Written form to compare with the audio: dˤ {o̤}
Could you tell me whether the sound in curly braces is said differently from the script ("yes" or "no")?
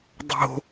no